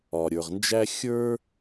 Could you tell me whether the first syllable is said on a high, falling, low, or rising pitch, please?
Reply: low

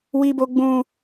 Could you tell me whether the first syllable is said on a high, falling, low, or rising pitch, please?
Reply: high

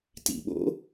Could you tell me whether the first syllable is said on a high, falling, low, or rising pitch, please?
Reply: low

